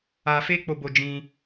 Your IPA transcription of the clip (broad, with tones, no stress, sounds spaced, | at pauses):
a˧ f e˦ k͡p o˧ b o˧ d͡ʒ ĩ˧